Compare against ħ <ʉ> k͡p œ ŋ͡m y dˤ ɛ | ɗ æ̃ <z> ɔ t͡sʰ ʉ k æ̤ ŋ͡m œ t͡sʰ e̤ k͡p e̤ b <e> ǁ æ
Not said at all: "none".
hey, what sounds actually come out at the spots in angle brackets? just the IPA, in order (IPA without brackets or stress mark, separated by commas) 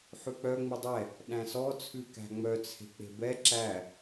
ʉ, s, ɛ